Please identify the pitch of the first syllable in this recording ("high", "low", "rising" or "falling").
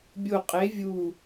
low